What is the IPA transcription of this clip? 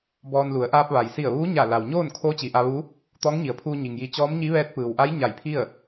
b ɔː˧ n l u˩˧ ə̯ ʔ aː˧ p̚ ʋ a˩ j s i˧˩ ə̯ ʋ uː˧˥ ɲ a˧˩ l a˩ w ɲ oː˥˨ n kʰ oː˧˥ t͡ɕ i˩ ʔ a˧ ʋ u˧˥ | t̪ ɔː˧˥ ŋ ɲ i˩˧ ə̯ pʰ uː˧ ɲ i˩ ŋ j i˧ t͡ɕ ɔː˧˥ m ɲ i˧˥ ʋ ɛː˧˥ t̚ p ɯː˩ w ʔ a˧˥ j ɲ a˧˩ j pʰ i˥˨ ə̯

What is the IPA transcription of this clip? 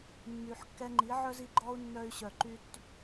mː y˨ ħ kː ɛ˧ ŋ͡ǃ i˨˦ ʕ œ˦ z i˧ ɡ͡ǃ ɔ˦ u̯ nː œ˧ y̯ ɕ œ˨ ǃ y˧ t

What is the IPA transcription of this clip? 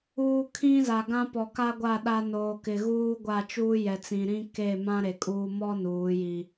uː˨ kʰ ĩ˦ z a˨ ɡ ã˦ p ɔ˨ k a˦ ɡʷ a˦˨ ɗ a˦ n oː˨ k ɪ˨ ɣ uː˦ ɡʷ a˦˨ t͡ʃ uː˦ j ɛ˨ t͡s ĩ˨ ɾ ĩ˦ k e˦˨ m ã˦ ɾ e˨ kʼ uː˦ m ɔ˦ n uː˨˦ j i˦

